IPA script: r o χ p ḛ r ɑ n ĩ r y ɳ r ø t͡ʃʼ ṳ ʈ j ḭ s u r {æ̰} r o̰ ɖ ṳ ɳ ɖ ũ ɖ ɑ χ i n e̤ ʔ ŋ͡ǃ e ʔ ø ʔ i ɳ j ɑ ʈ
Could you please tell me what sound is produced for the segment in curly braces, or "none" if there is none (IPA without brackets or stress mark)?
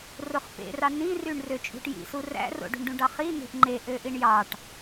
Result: æ̰